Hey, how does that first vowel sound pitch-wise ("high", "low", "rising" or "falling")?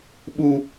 high